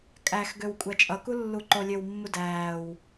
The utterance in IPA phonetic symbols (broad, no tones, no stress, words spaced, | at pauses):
kʼæx ɡøwkʷʼæt͡ʃʼʌku lːuǃolʲøwmːu dæːw